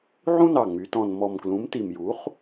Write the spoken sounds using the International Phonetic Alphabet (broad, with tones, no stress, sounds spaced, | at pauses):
ʕ ũ˦ n ɑ˨˩ ŋ͡m y˩˧ t ɔ̃˨˩ n m ɔ˨˩ m k l ũ˩˥ m t i˨˩ m j u˩˥ χ